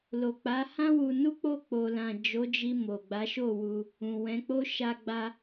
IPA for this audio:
lo˨k͡pa˨˦hã˦ wu˧nu˦k͡po˦˨ k͡po˨lã˨ d͡ʒo˨˦d͡ʒi˧ mo˨ɡ͡ba˨˦ʃo˦˨wu˧ | ũ˨wɛ̃˨˦k͡po˦ ʃa˧ɡ͡ba˧

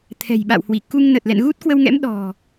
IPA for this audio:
t̪ʰɛ̤˨˩jɓa̰˧˨whwi˧˩ ku˧ŋnə˨˩t̚ lɛ̰˧˨nɣu˦˥t̚kwə˧wŋɛ̰˧˥m ɗɔ̤˨˩

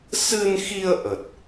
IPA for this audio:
sɨ˧nxi˧ə̯ ʔə˨˩t̚

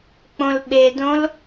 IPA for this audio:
k͡põlɓedõl

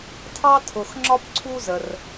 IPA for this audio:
tʰɑ˧tʰʊ˩xŋ͡ǁɒ˧p ǀʰu˧zə˩r

